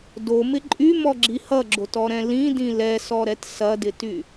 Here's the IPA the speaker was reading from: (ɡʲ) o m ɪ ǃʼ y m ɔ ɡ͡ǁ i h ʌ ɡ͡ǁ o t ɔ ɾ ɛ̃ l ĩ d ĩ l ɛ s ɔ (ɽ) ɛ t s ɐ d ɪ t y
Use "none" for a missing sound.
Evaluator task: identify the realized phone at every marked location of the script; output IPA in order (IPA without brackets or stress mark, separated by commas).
d, ɾ